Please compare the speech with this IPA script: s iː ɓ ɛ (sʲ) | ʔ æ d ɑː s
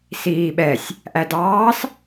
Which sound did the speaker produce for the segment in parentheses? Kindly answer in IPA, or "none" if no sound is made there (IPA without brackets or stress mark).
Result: sʲ